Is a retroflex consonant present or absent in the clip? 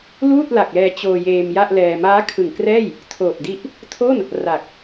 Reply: absent